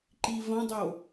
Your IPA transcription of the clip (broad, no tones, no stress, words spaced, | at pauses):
ǃivɐ̃dˤo